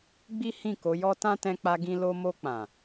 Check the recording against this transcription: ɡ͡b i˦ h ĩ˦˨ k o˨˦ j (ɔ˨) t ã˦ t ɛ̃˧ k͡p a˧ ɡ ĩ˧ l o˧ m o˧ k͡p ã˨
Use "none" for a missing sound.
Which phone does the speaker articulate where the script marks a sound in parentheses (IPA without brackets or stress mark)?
ɔ˦